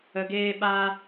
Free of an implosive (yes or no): no